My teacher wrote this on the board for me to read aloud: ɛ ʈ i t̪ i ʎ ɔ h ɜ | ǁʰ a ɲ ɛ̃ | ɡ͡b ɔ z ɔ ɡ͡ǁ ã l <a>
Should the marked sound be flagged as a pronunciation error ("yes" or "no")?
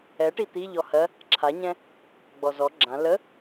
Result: yes